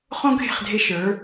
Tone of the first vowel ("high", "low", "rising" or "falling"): high